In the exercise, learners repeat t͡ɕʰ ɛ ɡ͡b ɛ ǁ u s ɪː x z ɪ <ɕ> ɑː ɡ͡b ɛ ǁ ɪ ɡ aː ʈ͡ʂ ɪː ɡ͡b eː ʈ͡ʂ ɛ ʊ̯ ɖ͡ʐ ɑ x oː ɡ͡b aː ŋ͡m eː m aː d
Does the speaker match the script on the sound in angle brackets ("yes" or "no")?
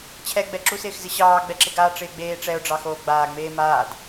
yes